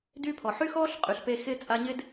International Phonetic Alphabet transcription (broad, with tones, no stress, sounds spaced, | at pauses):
d y˥ pʰ ɔ˩ ħ y˥ x ɔː˥ ɬ qʼ y˩ ɬ p e˦ x ɪː˥ t͡sʼ a˦ ɲ ɪ˥ d